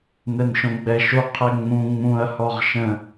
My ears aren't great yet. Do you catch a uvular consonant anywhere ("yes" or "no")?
yes